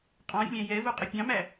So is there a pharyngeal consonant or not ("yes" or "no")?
no